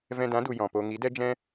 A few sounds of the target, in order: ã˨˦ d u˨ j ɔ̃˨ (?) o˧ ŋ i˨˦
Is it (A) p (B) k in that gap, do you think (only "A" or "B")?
A